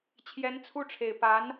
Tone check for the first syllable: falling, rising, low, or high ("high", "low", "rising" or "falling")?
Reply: rising